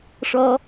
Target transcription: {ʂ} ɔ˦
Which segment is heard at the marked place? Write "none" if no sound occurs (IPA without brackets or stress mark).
ʂ